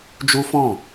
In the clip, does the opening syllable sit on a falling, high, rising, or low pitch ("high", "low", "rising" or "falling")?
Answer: high